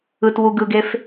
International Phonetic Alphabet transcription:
ɯtwu ɡɯɡef

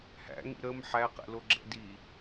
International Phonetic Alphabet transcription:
hæ̰ŋḭ ɾəm ħæqɛ̰loɡ͡ǁɛ̰ di

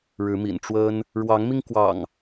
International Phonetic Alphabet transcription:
ɻɻ̩˨˦mḭ˨˩n ʈ͡ʂwə˦n | ɻwɑ˨˦ŋmi˧ŋ kwɑ̰˨˩ŋ

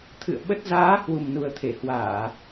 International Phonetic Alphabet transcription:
t̪ʰɨ̰˧˨ə̯ɓə˦˥t̚ zaː˨˦ hwu˨˩mnu˨˩ə̯ t̪ʰe˧˩hwaː˧˩˨

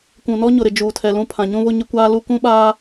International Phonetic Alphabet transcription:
kʷũ˨nɔ˦ɲʊ˨ɾɪ˨ d͡ʒuː˨tʰɛ˨lũ˦pʰã˨ ɲũ˦βʊ˦ɲɪ˦kʷaː˦ lu˦kũ˦ɓaː˦

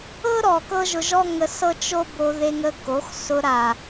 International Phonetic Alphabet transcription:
ɤ˦ɾɔ˨ kɤ˦ʒʊ˧ʒɔ˦ŋə˧ sɤ˦t͡ʃo˦bo˧ ðe˧ŋə˧ko˨˦xsʊ˧ ɾa˨

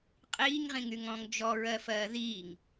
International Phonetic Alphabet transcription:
qʼiːŋʁĩŋyŋɔ̃ːŋ d͡ʒɔɹɜfɜː ðiːŋ

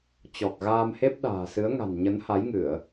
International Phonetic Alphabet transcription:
t͡ɕɔ˨˩k̚ɣaː˧mhe˦˥p̚ ɗa̤ː˨˩sɨ˨˦ə̯ ŋa̤˨˩n ɲə˨˦nha˨˦jŋɨ˧˩˨ə̯

